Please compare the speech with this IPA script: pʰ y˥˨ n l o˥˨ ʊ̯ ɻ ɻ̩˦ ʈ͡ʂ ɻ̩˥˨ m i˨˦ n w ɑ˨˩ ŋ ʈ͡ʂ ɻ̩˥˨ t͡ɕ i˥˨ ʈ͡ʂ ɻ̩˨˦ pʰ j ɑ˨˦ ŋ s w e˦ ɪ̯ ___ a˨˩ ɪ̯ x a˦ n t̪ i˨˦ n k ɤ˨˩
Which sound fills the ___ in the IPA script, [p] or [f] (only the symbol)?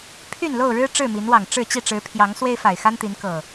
f